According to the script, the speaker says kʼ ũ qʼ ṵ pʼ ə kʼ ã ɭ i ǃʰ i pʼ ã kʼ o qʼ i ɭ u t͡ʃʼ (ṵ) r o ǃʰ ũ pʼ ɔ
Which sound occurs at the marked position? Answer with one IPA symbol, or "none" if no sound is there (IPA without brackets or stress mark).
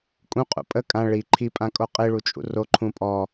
ṵ